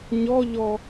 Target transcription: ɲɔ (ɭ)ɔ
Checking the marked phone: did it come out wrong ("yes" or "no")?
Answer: yes